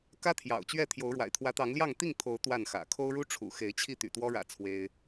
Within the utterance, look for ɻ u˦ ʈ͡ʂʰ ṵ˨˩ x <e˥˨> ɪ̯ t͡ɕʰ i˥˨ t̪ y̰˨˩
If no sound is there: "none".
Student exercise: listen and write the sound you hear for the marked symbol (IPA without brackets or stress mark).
e˨˦